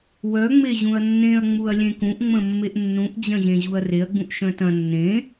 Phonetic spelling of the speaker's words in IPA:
wœŋ͡me ʑũɐ̯nːẽɐ̯ŋ͡muɐ̯ lʲẽkũʔŋ͡mə̃ mːeʔnːũʔd͡ʑɐ̃ʑẽ ʑuɐ̯reɐ̯ɡ͡bũʔ ʃœ̃tɐ̃ nːẽ

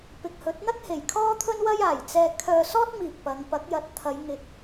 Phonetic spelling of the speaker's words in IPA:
pɪ˨k̚hɵ˨˥t̚n̪ɐ˥k̚ he˨˩jkʰɔː˥t̪ʰɵ˥nwɐ˥j aː˨˩jt͡sɛː˧ kʰœː˧sɔː˥t̚miː˨k̚ pɐ˨˧ŋ pɐ˨˥k̚jɐ˨˥t̚t̪ʰɐ˨˧j ŋɪ˨k̚

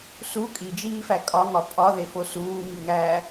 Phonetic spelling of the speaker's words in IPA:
su kʼid͡ʒiːfæ kʼɒŋɒ pʼɒðefo suːmiŋæː

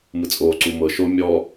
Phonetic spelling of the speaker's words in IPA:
mɯt͡sʼoː ǀumɤ ʃo mʲɔ

